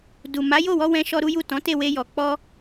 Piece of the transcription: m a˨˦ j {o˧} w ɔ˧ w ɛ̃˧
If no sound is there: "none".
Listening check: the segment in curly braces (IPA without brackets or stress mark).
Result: o˦˨